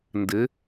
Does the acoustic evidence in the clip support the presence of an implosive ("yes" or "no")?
no